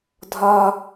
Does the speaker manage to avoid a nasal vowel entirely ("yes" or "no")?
yes